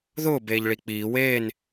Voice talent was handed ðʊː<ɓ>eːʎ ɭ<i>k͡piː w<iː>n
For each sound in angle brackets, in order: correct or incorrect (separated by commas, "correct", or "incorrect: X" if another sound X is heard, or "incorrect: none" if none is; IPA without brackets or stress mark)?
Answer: incorrect: b, correct, incorrect: eː